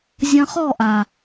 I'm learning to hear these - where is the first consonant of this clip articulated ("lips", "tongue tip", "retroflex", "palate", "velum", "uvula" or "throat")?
tongue tip